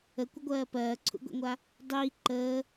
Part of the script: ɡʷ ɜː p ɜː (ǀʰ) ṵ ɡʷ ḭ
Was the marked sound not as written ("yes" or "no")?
no